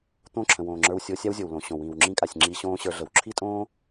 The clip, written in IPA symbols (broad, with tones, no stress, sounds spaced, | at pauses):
t̪ õ˦˨ ǁʰ ə̃˨ w õː˨ ŋ͡ǁ ə˞˧ w sʲ o˧ sʲ a˦ w zʲ o˨ w l õ˨ ɕ õ˨ w ĩː˨ w ŋ͡ǁ ĩ˧ kʼ a˨ sʲ ŋ͡ǁ i˧ ɕ õː˦ ɕ ə˞˧ ɮ ə˨ w ǁʰ i˦ tʼ õː˦